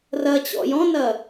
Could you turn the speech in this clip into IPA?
r ɐ t͡ɕ ɔ̰ j ɔ̃ n ɐ

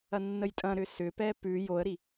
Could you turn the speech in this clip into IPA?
ɐ nː ə j tʼ ɐ̃ ɾ ʏ s ʏ p ɛ p ʉ j o ə̯ ɾ i

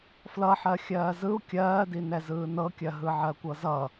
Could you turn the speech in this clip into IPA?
f l ʌ ħ ɜ xʲ ɜː z ɯ u̯ kʲ ɜː d i n ɛ z ɯː n ɤ kʲ ɜ ɦ ɯ ʕ ɜ kʷ ɤ z ʌ

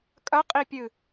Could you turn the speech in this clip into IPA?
kʼ ɐ qʼ i pʲ ɨ

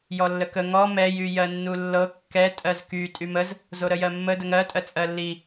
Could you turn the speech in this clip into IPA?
j ɔ lː ə k ə ŋ ɔ m ɛ j y j ɜ nː u lː ɤ kː ɛ tʼ ɜ z k y tʼ y m ə z | z o ɾ ə j ɜ mː ə d ə ŋ ɜ tʼ ɜ t͡sʼ ɜ lː i

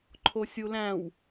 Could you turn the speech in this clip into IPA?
ǃʰ o sʲ u l æ̃ w

